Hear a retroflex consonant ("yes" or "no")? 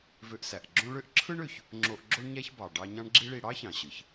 yes